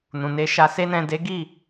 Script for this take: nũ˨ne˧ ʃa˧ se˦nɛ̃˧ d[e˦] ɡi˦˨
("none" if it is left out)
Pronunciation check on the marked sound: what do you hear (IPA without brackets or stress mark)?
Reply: e˦